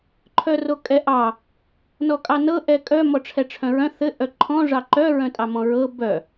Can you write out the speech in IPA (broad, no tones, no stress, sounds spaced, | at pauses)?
ǃʰ œ r o kʼ ɛ ʔ ɑ | n ɔ kʼ ɑ n ɤ ʔ ɛ kʼ œ m ɔ ʈ͡ʂʰ ɛ ʈ͡ʂʰ œ̃ ɹ œ̃ θ ɘ ʔ œ ǃʰ ɔ̃ ʐ ɑ ǃ œ ɹ œ̃ tʼ ɑ m ɔ̃ ɹ ɤ b œ